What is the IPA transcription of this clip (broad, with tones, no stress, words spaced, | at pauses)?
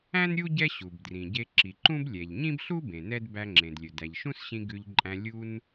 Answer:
æ̃˥n ɾʲu˥ ɟɛ˥ɕu˩bdrĩ˩ ɟe˧ǁi˩ǃũ˥b lʲɛ˩ʎɲĩ˥bɬu˥ bẽ˩nɛ˥d bæ˧ŋ͡ǁẽ˩dlʲɵ˩ dæ˩ʎʃũ˥sɕĩ˧ ɡʉ˧ʎǃʼæ̃˧ lʲu˧n